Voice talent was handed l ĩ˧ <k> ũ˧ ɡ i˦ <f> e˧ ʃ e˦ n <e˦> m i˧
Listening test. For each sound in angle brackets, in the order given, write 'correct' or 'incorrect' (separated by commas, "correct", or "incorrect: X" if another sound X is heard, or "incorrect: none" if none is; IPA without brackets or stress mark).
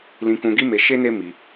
correct, incorrect: m, correct